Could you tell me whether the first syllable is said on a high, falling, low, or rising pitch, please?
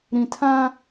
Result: low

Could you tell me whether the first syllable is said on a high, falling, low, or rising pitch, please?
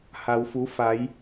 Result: low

